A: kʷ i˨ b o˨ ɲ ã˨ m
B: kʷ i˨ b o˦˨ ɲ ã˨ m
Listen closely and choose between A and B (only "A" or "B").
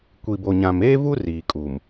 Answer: A